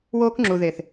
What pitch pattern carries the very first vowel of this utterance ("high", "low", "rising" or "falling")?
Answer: high